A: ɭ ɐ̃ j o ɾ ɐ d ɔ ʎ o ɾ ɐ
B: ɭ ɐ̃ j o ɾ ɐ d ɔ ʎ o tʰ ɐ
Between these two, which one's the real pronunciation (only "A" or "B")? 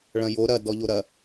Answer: A